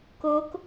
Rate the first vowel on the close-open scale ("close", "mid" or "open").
mid